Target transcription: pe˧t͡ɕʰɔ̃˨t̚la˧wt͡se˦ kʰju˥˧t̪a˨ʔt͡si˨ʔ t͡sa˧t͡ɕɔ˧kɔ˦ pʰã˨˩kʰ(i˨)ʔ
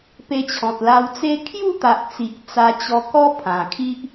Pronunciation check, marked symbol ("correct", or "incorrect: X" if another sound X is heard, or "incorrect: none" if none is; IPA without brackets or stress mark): incorrect: i˦